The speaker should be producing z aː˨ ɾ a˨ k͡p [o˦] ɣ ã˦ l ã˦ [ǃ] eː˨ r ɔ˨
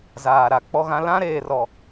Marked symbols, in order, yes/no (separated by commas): no, no